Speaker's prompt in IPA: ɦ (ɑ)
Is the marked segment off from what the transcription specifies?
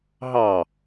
no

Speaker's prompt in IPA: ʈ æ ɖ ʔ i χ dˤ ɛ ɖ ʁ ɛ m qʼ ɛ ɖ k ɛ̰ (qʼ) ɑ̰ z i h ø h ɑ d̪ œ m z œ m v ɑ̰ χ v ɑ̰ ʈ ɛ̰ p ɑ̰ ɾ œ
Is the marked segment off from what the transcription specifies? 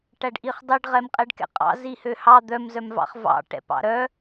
no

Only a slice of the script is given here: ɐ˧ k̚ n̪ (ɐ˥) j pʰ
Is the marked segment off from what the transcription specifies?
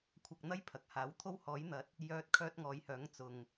no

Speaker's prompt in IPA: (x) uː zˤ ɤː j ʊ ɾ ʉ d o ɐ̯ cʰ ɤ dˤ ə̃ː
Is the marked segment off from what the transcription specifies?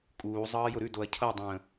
yes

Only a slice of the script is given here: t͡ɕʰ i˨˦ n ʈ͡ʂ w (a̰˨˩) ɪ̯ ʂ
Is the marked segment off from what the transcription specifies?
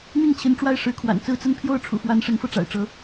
yes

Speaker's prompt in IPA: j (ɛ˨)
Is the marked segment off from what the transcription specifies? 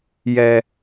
no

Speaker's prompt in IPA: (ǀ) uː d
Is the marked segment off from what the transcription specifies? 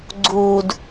yes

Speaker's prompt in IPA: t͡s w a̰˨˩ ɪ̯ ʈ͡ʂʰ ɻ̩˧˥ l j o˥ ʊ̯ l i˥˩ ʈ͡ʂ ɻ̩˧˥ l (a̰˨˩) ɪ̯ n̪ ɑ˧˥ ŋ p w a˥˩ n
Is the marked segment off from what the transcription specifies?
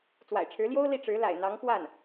no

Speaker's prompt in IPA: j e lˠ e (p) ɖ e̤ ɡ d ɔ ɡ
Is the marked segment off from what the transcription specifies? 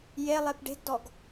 no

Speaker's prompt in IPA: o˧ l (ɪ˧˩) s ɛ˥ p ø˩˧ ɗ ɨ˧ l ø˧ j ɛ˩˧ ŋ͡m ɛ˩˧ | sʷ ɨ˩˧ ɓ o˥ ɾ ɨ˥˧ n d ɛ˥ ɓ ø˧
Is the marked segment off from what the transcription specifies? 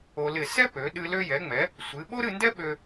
no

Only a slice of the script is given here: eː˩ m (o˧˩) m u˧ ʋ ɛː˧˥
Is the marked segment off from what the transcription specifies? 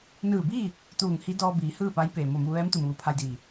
no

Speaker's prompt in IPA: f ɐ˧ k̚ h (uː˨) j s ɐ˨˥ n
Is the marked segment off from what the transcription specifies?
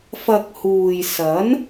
no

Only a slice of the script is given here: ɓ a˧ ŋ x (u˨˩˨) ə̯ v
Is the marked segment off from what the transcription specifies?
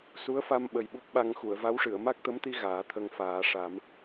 no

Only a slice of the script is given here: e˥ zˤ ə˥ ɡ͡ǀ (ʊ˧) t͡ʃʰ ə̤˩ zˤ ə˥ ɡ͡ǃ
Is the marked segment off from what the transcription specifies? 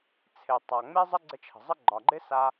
yes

